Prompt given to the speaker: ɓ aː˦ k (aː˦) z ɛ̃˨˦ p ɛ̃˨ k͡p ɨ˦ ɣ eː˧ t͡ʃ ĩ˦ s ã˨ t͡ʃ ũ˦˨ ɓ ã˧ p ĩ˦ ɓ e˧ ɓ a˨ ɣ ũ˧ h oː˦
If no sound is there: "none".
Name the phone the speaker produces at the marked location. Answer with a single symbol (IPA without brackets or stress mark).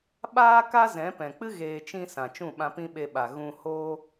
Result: a˦